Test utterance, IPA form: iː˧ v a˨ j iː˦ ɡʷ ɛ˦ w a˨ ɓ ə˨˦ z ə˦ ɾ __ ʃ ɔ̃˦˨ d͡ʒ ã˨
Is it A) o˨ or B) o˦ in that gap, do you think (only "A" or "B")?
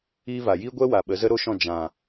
B